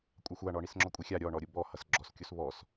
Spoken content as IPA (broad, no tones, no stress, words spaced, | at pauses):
kʷʼaxʷaɳɔ ɳisŋ͡ǁɔkʷʼixʲa ɾʲɔɳɔ ɾʲubɔ hʌsɡ͡ǁɔskʲus βɔs